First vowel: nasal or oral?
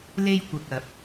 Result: oral